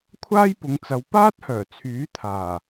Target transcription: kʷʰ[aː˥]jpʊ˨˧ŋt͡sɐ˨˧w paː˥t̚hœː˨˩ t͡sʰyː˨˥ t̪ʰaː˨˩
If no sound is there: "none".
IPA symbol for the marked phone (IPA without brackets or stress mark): aː˥